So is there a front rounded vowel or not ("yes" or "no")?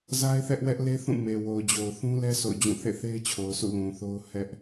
no